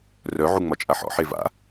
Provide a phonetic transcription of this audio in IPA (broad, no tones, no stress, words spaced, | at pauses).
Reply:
rœ ʕuŋ͡mɒt͡ʃʼaħɔ̰ ħeva̰